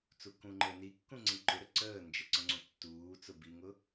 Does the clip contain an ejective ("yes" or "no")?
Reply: no